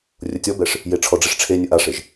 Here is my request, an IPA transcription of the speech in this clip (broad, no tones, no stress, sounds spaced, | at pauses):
rʲ ʊ tʲ ɔ b ɛ ʂ | j e ʈ͡ʂʰ ɔ ɖ͡ʐ i ʂ ʈ͡ʂʰ e nʲ ʊ ʔ a ʂ e ʒ